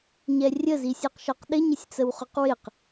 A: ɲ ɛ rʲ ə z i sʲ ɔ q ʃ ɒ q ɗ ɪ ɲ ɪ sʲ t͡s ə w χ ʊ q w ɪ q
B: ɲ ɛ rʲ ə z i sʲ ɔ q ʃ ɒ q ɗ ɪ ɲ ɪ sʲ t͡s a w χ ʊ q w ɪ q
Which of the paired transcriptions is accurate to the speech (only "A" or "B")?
A